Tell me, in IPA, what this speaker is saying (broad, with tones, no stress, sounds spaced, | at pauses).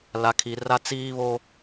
l a˨ kʰ i˨ r a˦ t͡s iː˦ β o˦